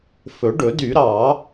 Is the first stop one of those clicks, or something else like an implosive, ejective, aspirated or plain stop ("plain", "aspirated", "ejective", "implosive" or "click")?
plain